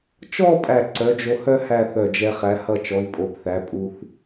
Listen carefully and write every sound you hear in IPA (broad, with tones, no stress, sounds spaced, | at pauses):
t͡ʃ ɔ˥˧ pʼ æ˧˩ ǀ œ˩˧ d͡ʒ o˧ h œ˥ h æ˥˧ θ œ˧˩ d͡ʒ ɛ˧ χ æ˩˧ h ʌ˧˩ t͡ʃ ɔ˩˧ i̯ pʼ o˩˧ p θ æ˩˧ pʼ u˧ θ